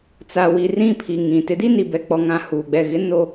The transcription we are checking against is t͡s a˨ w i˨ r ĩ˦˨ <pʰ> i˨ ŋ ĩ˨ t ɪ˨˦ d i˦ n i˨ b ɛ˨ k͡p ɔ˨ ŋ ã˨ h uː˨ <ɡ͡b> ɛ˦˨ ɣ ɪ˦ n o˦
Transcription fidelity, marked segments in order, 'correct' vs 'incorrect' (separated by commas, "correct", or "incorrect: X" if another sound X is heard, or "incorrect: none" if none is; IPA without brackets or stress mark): correct, correct